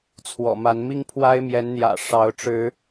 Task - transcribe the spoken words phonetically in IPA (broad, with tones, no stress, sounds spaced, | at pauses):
t͡sʰ w ɔ̰˨˩ m a˨˦ n m i˦ ŋ pʰ w a˦ ɪ̯ m j ɛ˨˦ n n̪ j ä̰˨˩ ʂ ɑ˨˦ ʊ̯ ʈ͡ʂ ɻ̩˨˦